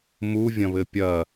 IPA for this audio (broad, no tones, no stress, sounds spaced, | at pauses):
m u vʲ ɐ̃ β ɘ pʲ ɐ